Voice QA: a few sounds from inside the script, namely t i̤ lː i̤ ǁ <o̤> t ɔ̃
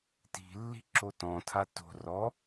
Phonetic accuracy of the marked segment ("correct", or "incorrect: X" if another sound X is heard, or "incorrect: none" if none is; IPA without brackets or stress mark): incorrect: o